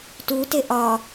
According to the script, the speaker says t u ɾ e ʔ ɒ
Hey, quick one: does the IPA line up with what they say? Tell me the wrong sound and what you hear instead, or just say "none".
ɾ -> t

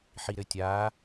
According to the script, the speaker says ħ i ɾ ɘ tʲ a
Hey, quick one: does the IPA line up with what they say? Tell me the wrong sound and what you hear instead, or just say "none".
none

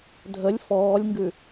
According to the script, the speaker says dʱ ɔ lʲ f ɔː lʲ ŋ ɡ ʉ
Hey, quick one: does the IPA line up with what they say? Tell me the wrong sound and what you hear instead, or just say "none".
ɔ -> ə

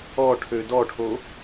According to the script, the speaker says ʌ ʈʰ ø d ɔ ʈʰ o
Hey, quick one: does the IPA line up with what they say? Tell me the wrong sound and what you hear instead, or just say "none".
ʌ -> ɔ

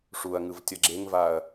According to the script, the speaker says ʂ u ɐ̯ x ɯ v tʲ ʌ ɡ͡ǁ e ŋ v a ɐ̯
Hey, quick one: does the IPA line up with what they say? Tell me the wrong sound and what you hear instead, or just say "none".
x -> ŋ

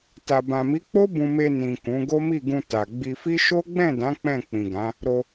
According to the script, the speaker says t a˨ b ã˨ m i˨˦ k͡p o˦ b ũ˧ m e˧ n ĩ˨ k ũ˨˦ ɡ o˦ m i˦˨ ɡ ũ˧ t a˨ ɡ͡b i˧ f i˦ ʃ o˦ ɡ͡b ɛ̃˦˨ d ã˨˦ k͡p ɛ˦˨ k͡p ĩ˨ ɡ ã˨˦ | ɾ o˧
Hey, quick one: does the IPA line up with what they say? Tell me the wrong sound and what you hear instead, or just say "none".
ɛ˦˨ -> ɛ̃˦˨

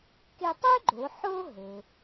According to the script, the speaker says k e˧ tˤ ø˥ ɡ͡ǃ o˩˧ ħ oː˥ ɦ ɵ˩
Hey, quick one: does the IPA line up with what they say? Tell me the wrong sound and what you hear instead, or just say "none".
none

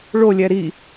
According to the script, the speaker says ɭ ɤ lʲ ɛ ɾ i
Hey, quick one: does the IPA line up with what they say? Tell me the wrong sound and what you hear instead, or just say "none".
ɤ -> o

